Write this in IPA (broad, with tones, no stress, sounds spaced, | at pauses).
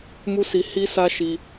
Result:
m u˦ s i˧ h i˦ s a˦ ʃ i˧